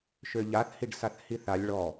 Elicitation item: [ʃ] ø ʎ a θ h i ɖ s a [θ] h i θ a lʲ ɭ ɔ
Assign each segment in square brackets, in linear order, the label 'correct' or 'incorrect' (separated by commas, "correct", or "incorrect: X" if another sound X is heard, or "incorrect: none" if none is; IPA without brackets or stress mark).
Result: correct, correct